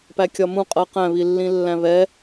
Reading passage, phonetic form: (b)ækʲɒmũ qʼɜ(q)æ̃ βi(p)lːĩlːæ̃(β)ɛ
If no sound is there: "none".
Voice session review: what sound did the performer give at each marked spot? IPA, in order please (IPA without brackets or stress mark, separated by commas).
p, q, none, β